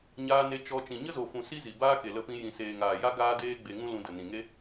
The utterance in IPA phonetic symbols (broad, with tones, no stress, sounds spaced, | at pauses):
ɲ aː˧ n e˧ t͡ʃ ɔ˧ t͡ʃ ĩ˨ ɲ ə˦ z o˨ f ũ˨ s i˦ z i˨ b aː˦ k e˨ l ə˧ p ĩ˧ j ĩ˨ s eː˨ ŋ aː˨ j a˦ ɡ aː˦ d eː˦ ɡ͡b e˧ ŋ ũ˦ l ũ˧ d ə˨ n ĩ˨ ŋ e˦